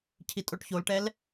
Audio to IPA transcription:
cʰ i tʼ o ʈ ç o l ʈ ɛ l

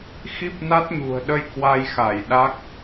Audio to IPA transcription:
x i˦˥ p̚ n a˦˥ t̚ ɲ ṳ˨˩ ə̯ ɗ ə˧ j k w a˧ j x a˧˩ j ɗ a˦˥ k̚

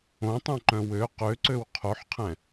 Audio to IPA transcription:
õ tˤ ũ ǃ œ̃ w ø q ø ǀ ø w qʰ o ħ qʰ ɛ̃

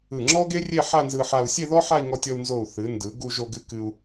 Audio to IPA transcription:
ɯ˧˩ ŋ͡ǁ ɔ˥ ɡ e˥ rʲ e˥˧ ħ a˥˧ n z ɯ˧ ħ a˧ u̯ sʲ e˥˧ ð ɔ˥ ħ a˥˧ i̯ ŋ ɔ˧ tʲ ɔ˧ u̯ n z o˧˩ u̯ θ ɨ˩˧ n d ɯ˩˧ ɡ u˧ ʒ o˧ ɡ ɨ˧ k ɨ˧ u̯

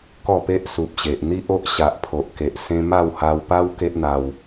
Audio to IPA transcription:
k ɔ˥˧ p e˦ ʔ s u˨ p̚ ɕ e˨ ʔ n̪ i˦ ʔ o˦ ʔ ɕ a˨ ʔ pʰ o˨ ʔ k e˨ ʔ s ẽ˧ m a˥˧ w h a˧ w p a˦ w k e˦ ʔ n̪ a˧ w

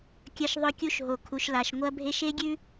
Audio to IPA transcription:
kʲ ɐ˦ ʃ ðˤ ɵ˦ kʲ u˦ ʃ ɦ o˨˦ kʰ u˨ ʃ l a˨ ʃ ŋʷ ɐ˦ bʱ e˦ ʃ e˦ ɡʲ ʉ˦

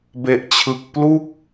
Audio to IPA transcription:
b e˨˩ ʔ t͡ɕʰ ɯ˨˩ k̚ p l u˥˩ k̚

